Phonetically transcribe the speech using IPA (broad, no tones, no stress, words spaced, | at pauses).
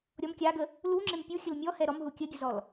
ɾʲɔm kʲaɡə | luŋ͡ǁɪm pʲuxʲəl mʲɔhɛ ɾɔmɦu kʲəɡʲəzɔl